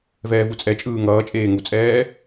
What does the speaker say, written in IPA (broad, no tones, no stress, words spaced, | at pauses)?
vɛːvut͡sʼɛt͡ʃʼɯː ŋʌːt͡ʃʼeː ŋut͡sʼɛː